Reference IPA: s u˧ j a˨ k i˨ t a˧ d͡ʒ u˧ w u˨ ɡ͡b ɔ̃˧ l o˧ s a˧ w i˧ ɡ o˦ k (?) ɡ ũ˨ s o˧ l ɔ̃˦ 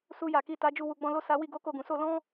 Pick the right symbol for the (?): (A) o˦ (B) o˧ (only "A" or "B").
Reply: B